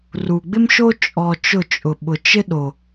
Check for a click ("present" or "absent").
absent